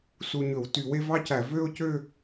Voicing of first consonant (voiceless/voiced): voiceless